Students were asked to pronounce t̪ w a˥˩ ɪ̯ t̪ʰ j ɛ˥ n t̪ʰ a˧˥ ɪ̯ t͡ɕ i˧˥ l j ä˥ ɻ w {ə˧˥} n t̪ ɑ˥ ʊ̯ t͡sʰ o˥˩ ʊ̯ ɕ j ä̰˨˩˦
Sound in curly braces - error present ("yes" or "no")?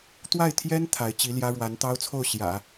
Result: yes